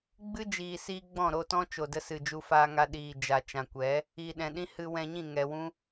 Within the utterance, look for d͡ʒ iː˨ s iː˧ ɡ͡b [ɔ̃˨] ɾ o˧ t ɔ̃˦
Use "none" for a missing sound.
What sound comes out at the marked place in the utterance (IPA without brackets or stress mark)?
ɔ̃˦˨